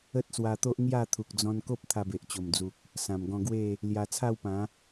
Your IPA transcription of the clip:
ə˦ t̚ s w a˧ t̪ o˦ ʔ ŋ j a˥˧ t̪ʰ u˨ k̚ d͡z ɔ̃˧ n k o˦ p̚ t̪ʰ a˧ b e˨ ʔ t͡ɕ o˨˩ m d͡z u˨ k̚ | s ã˨˩ m ɡ ɔ̃˧ ɡ w e˥˧ | l j a˧ t͡sʰ a˥˧ w p ã˨˦

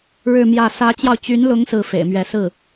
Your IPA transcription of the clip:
ɻ ɻ̩˥˧ m j ä˥˩ s ä˧˥ t͡ɕ j ɑ˧ ʊ̯ t͡ɕ y˧˥ n l ʊ˧˥ ŋ s ɹ̩˥˩ f ḛ˨˩ ɪ̯ m ɥ ɛ˧˥ s ɹ̩˥˩

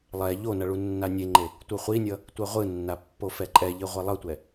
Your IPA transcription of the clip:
lˠ ɛ ʎ o n ʌ ɭ u nː a nʲ e ŋ͡ǃ e | tʷ ɯ χʷ i nʲ ʌ | tʷ ɛ ʁʷ ɯ nː a pː o f ɛ ǃʼ ɛ ʎ i ʁʷ e lˠ ʌ tʷ ɛ

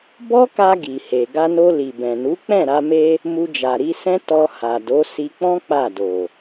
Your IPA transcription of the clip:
b ɔ˦ k a˧ ɡ i˨ h e˨ ɡ a˧ n o˧ l i˨ b ɛ̃˨ n u˨˦ k͡p ɛ̃˦˨ ɾ a˧ m e˧ | m u˧ d͡ʒ a˨ ɾ i˧ s ɛ̃˦ t ɔ˧ h a˨ d o˨˦ s i˧ k͡p ɔ̃˦ k͡p a˦˨ d o˨

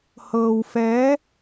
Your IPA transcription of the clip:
h ɤː˧ w f ɛː˧˥

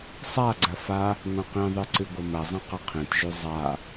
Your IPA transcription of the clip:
sˤ a ɡ͡ǀ ɐ f a | ŋʷ ɐ̃ q ĩ ðˤ ɨ ǀ ɨ ɡʷ ɐ m ɐ zˤ ɐ̃ q ɐ qʰ ẽ t ʒ ʉ zˤ a

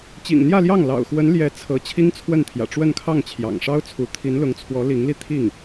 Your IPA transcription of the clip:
t͡ɕ ḭ˨˩ ŋ n̪ j ä˥˧ l j ɑ˥˩ ŋ l ɑ̰˨˩ ʊ̯ x w ə˧˥ n l j ɛ˧˥ t͡sʰ ɤ˧˥ t͡ɕʰ i˥ ŋ t͡sʰ w ə˥˩ n t̪ʰ j ä̰˨˩ ʈ͡ʂ w ə˥˧ n kʰ ɑ˥˩ ŋ t͡ɕʰ j ɑ̰˨˩ ŋ ʂ ɑ˥ ʊ̯ t͡sʰ u˧˥ t̪ʰ i˧˥ n l ʊ˧˥ ŋ t͡sʰ w ɔ˧˥ l i˧˥ ŋ l i˧ t̪ʰ i˥˩ ŋ

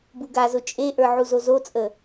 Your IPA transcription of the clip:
b u ɡ a z ʊ t͡ʃʼ e ʔ ə˞ ʕ u z o z o t͡sʼ ə

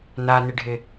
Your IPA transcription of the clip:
n a n ɪ ɖʱ ɪ

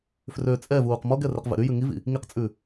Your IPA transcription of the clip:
f r ø t͡sʼ ɛ v uː q m ɔ ɡ ɛ r e q v ɛ̰ ɾ y j ʉ ŋ i v ḭ | ŋ i q t͡sʼ ʉ

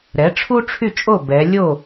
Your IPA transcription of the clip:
ɾ ɛ˩˥ ʈ͡ʂʰ u˥ ʈ͡ʂʰ y˥˩ t͡ʃʼ o˥˩ b ɛ˩˧ lʲ o˥˩

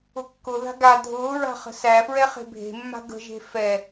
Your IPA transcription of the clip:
ʊ kː ʊ ð a̤ ɡ a dʱ ʊː ɹ a̤ χ ə̤ s æ f ɹ ɛ χ e̤ bʱ e̤ mː a̤ ɡ ə̤ ʒ e̤ f ɛ

